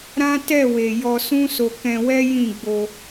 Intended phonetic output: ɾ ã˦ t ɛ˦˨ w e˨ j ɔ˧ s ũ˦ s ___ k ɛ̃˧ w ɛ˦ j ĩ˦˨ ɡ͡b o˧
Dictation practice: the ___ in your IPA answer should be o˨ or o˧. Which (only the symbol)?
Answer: o˧